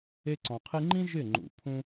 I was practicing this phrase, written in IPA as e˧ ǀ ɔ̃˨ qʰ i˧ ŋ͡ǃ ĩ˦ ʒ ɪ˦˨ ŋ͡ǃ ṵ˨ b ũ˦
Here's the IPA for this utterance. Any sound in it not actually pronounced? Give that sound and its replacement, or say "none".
b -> pʰ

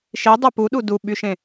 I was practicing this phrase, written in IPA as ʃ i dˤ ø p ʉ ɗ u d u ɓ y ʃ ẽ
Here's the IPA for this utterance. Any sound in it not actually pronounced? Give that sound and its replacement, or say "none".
ʉ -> u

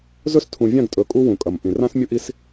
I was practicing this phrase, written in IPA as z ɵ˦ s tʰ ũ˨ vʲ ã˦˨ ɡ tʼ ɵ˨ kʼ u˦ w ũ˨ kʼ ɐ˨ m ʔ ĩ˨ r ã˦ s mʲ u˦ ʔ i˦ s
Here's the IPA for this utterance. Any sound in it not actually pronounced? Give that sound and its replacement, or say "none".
none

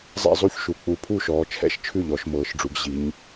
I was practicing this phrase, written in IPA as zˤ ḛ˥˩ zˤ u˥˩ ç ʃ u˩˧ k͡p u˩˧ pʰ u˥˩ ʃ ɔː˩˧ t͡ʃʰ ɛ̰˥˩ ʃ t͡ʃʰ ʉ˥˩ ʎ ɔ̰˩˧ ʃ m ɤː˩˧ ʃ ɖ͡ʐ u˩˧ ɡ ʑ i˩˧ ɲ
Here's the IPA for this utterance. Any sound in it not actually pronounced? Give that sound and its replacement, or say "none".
ɔ̰˩˧ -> ɔ˩˧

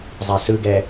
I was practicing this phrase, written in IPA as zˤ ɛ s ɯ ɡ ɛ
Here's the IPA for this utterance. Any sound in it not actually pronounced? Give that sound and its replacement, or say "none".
none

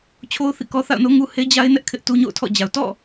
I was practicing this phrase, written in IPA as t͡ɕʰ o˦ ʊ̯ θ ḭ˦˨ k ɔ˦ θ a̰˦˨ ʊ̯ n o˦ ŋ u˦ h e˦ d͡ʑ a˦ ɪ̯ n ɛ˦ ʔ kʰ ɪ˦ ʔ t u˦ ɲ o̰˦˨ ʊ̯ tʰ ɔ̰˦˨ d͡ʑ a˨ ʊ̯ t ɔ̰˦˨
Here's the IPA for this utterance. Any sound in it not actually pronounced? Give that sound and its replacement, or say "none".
none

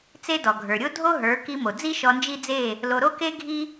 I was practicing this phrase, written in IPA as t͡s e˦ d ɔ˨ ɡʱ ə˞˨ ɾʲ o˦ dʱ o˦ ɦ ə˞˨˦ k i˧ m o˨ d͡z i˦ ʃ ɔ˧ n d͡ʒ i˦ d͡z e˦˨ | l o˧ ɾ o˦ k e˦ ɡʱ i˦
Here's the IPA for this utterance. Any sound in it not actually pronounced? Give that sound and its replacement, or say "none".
none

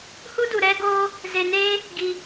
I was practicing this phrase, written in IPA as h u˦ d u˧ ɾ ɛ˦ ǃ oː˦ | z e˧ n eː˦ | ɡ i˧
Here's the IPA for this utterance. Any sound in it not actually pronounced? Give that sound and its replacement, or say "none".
ǃ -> ɡ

